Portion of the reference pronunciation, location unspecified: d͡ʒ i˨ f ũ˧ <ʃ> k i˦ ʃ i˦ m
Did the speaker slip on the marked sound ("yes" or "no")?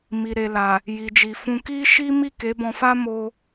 yes